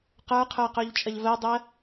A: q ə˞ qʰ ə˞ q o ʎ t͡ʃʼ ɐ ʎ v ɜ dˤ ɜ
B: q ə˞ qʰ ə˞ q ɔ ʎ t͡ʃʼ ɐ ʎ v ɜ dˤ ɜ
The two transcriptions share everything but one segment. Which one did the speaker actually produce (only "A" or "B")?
A